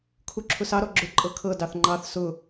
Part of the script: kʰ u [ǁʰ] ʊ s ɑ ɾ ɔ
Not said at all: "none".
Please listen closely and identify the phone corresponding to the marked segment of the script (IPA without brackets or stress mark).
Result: ǁʰ